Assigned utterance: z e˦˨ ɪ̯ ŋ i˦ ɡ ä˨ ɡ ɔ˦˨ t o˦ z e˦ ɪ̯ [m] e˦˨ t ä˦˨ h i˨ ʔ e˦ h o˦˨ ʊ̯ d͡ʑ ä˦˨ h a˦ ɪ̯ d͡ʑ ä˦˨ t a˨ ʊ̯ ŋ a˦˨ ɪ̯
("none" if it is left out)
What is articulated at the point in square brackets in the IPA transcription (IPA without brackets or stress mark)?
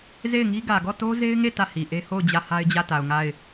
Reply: ŋ